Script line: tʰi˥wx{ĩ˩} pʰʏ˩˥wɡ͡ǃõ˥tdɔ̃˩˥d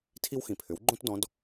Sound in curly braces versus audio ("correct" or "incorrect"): correct